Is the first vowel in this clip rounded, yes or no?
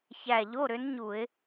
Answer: no